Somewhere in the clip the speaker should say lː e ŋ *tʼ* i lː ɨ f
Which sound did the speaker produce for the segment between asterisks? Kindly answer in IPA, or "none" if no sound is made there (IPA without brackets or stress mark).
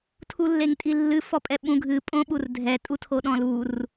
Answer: tʼ